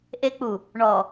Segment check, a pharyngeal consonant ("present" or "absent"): absent